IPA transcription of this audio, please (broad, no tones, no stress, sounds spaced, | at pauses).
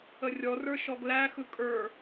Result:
ə rʲ ɔ r ə˞ ʃ ɔ ɡ l æ x ɯ kʼ ə˞